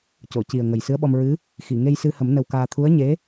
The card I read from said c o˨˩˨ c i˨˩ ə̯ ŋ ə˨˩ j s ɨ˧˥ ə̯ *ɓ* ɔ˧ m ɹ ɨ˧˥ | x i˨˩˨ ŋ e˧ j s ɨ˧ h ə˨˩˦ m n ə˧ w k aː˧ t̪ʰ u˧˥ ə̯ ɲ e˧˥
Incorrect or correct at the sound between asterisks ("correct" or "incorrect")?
correct